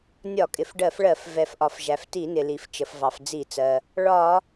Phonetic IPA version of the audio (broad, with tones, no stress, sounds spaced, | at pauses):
nʲ ɒ˧˩˧ kʼ ɪ˩ f ɖ ɜ˧˩˧ f ɭ ɜ˧˩˧ f v ɛ˩ f ʔ ɒ˩ f ʒ æ˩ f t i˧˩˧ n ɪ˩ l i˩ f t͡ʃ ə˩ f v ɑ˩ f d͡z i˧˩˧ t͡s ɜ˩ | ɭ ɒ˧˩˧